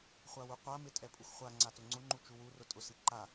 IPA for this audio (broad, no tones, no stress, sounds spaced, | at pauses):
χʷ a w u qʷ a m ɪ tʼ ɛ pʼ u x χʷ a ŋ͡ǀ a t ʊ ŋ͡ǀ ʊ ŋ͡ǃ u t͡ʃ u w u r ʊ tʼ ʊ s i ǃ a